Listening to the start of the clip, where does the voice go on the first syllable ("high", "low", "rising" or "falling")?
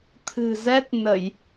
low